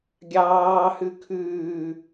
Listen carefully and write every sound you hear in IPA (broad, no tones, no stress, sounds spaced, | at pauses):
ɡʲ ɑː h ʉ kʰ ʉː